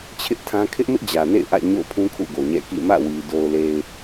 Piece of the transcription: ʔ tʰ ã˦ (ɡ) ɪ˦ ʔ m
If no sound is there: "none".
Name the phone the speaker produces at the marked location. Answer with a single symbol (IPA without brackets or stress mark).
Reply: kʰ